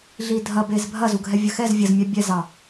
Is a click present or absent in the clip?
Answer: absent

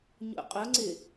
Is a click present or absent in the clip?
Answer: present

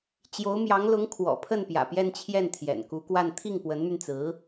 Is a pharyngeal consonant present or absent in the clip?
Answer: absent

